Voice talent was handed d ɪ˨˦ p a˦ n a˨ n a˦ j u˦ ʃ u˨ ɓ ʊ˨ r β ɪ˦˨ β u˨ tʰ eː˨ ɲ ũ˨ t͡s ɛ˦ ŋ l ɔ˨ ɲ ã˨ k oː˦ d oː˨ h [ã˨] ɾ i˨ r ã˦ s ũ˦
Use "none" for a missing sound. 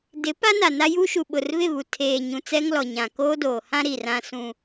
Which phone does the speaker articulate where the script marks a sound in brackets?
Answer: ã˦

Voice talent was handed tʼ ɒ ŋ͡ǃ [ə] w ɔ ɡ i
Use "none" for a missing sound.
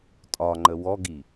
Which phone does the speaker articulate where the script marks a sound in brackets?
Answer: ə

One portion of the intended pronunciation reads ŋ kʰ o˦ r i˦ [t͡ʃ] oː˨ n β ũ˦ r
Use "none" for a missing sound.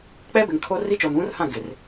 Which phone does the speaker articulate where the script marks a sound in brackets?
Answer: t͡ʃ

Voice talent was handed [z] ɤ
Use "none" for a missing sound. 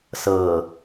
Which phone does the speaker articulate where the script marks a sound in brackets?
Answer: s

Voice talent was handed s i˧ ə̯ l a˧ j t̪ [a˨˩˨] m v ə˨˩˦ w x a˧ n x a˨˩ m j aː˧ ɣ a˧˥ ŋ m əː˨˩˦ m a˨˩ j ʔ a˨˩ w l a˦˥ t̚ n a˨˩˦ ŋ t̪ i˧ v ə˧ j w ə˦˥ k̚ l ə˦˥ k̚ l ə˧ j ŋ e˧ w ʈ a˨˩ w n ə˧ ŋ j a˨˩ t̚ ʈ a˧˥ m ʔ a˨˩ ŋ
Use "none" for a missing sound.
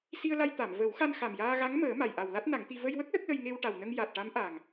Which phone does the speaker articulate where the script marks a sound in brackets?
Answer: a˨˩˨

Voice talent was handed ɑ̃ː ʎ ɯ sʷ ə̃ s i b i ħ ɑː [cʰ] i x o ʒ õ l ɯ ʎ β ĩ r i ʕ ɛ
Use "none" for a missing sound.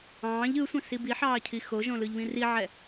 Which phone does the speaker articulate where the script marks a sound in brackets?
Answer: cʰ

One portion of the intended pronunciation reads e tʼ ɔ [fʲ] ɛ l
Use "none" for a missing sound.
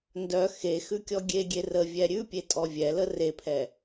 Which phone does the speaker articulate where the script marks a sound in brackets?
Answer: vʲ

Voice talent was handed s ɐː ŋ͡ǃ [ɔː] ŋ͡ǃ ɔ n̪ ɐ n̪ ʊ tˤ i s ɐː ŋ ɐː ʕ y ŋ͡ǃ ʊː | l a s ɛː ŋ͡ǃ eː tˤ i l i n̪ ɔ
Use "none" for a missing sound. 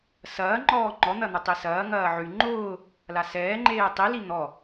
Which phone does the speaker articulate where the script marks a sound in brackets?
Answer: ɔː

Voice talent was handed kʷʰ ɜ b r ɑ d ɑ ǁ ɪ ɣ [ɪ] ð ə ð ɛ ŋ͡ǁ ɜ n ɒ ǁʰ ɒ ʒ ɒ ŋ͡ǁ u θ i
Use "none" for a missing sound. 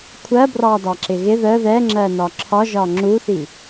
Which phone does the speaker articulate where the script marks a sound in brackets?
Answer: ɪ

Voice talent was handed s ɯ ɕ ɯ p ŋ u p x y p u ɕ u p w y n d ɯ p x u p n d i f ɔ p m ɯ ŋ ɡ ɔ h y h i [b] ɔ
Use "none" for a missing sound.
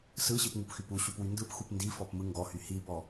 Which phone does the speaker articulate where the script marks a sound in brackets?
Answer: b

